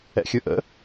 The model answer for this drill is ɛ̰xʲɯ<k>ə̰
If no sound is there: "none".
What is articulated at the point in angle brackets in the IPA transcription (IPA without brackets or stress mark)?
ʔ